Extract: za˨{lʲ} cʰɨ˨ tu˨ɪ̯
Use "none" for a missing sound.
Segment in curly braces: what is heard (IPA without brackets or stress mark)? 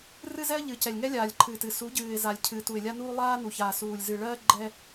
lʲ